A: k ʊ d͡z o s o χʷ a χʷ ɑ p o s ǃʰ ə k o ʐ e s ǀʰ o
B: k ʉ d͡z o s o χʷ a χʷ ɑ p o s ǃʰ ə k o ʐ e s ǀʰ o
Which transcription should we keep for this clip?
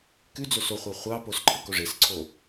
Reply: B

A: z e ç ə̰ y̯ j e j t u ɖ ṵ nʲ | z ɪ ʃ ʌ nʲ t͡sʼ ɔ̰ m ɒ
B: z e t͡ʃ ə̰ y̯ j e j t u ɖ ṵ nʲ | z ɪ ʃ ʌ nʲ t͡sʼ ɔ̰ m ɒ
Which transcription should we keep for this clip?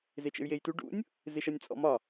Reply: B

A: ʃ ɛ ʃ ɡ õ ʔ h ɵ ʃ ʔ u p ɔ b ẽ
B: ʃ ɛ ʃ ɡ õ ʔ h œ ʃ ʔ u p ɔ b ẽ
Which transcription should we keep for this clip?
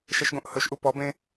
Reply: A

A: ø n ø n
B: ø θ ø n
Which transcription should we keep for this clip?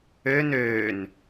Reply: A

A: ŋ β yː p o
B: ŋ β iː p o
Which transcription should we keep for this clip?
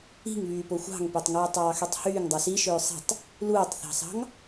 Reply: A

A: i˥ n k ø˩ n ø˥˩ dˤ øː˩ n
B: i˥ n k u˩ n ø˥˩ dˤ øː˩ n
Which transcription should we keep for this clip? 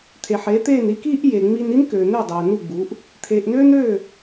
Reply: A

